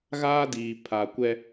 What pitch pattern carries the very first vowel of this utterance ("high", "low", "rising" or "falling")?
high